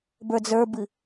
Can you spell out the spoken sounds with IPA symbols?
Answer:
bə˞d͡zə˞bɨ

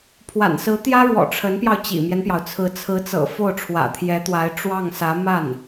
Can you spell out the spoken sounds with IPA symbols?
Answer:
pʰwa̰˨˩nsɹ̩˧˥t̪jä˥ɻwɔ̰˨˩ ʈ͡ʂʰə˧˥npjɑ˧ʊ̯ t͡ɕḭ˨˩mjɛ˦npjɑ˩ʊ̯t͡sʰɹ̩˧˥ t͡sʰɹ̩˧˥t͡sɤ̰˨˩ fo˥˩ʊ̯ʈ͡ʂʰwä̰˨˩t̪ʰjɛ˧˥t̪wa˧˥ɪ̯ ʈ͡ʂwɑ˥˩ŋsä˧˥ ma˥˩n

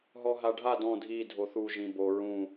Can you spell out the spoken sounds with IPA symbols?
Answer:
ɦɔɦaɖʱa dɔ̃ dʱi dʱoθu ʒĩbo ɹũ

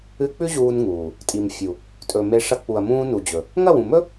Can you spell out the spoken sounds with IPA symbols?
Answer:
ɨ˧k͡pʉ˦ ʑuː˧n ŋuː˨ | tʼi˨mfʲu˨ | tʼɵ˨me˧ʂɐ˧ k͡pu˨ɐ̯mũː˧nu˨d͡ʑɵ˨ | ŋɐ˦˨wũ˨mɵ˦

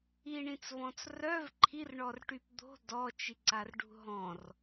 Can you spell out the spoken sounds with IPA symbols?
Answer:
iɳĩt͡svɔ̃t͡s rœv ǃʰirɳɔrʈyp d̪o̤ dɔt͡ʃiǀarɖṳ ɦɔ̃r

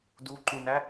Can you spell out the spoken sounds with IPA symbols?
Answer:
duǃũnæ

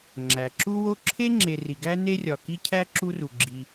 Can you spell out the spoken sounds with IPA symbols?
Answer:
ŋ͡ǁæ˩ ǁu˦wo˦ǁʰe˥ŋ͡ǁe˨ ri˩ɡæ˦ne˦rʲɒ˩ ki˥cʰæ˥ǁu˦ru˩ ɡ͡ǁi˨

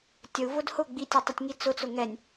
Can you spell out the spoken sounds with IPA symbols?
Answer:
tʲəu̯ vʊdhʊ ɡ͡bitʲɛtˤətʲŋi t͡sʊt͡sʊ ŋɛnʲ

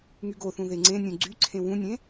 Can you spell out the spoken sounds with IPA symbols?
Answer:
ŋyɡoθũ ðeŋ͡ǀẽnʲũ ɡ͡ǀyǀʰẽ wũnʲẽ

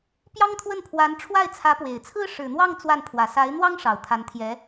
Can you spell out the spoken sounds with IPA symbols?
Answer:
pjɑ˥ŋt̪ʰwə˥˩n pʰwa˧˥n ʈ͡ʂʰwa˥˩ɪ̯t͡sʰä˧˥pwe˨˩ɪ̯t͡sʰɹ̩˥ ʂɻ̩˨˩n̪wɑ˥˧ŋ t͡swa˥˩npʰwä˨˩ sa˧˥ɪ̯n̪wɑ˥ŋ ʂɑ˨˩ʊ̯t̪ʰa˧˥nt̪ʰjɛ˧˥

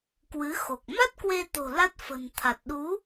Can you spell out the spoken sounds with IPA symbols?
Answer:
kwɨ˨˦xo˨˩k̚ ma˦˥t̚kwe˧t̪o̤˨˩ la˦˥t̚fə̤˨˩n t̪ʰa˨˩t̚ɗu˨˦

